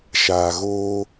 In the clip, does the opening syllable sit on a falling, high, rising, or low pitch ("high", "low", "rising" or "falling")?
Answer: low